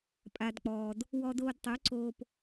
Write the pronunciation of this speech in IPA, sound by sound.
pʼa˨dk͡pɔː˨d | wɔ˧doː˧dtˤɯ˨˦ ǀo˧p

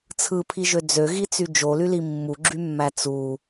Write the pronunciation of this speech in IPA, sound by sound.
t͡sʰɯpʰiʒø d͡zøɣit͡sy d͡ʒolyli mːuɡ͡ǁymːæ t͡su

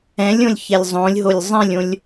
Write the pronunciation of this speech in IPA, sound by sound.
ɛ̃lʲõlʲ çɛlʲzˤõlʲɦolʲ zˤĩlʲõlʲ

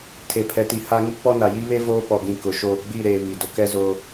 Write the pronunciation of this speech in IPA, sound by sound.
tʰe˨pʰɛ˨ti˨ ha˦ ŋi˦k͡pɔ˦na˨ ji˦βe˦ voː˦pɔ˨ɡĩ˨kʊ˨ ʃoː˨ɡ͡bi˦˨ɾeː˨ βi˨dʊ˦ kɛ˦zoː˦

